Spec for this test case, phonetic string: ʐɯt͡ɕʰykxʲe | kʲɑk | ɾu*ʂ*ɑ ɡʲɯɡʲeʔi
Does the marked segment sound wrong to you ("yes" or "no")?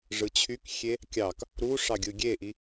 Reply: no